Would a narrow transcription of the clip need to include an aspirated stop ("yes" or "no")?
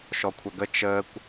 yes